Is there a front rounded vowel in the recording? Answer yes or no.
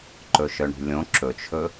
yes